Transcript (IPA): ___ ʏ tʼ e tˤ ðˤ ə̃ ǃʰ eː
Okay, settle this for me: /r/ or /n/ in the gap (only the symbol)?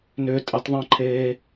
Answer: n